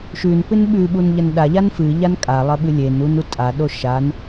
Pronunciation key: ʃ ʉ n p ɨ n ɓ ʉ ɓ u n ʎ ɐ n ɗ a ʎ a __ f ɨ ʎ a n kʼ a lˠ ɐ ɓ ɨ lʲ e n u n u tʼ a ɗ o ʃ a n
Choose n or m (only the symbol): n